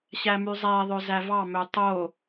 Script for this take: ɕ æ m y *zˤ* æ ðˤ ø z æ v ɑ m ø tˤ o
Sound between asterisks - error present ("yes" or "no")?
no